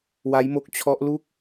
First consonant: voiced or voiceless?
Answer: voiced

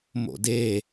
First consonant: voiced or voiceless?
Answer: voiced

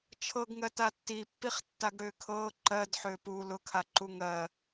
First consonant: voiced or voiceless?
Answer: voiceless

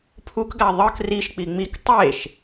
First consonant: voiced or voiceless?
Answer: voiceless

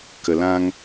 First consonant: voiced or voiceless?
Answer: voiceless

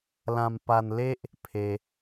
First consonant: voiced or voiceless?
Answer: voiced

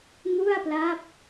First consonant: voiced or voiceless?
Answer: voiced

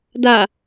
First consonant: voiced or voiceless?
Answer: voiced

